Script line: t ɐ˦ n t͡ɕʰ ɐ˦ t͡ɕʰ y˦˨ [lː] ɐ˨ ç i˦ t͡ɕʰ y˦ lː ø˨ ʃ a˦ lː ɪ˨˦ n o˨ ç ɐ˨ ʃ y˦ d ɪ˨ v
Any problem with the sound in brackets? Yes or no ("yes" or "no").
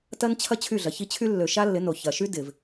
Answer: yes